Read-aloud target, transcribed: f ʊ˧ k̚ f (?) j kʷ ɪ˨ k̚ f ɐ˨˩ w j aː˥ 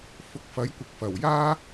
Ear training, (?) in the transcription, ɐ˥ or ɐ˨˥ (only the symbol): ɐ˨˥